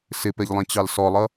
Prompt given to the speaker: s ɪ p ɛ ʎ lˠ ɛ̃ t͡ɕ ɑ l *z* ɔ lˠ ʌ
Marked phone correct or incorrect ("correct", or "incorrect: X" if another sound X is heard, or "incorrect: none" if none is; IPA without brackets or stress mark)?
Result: incorrect: s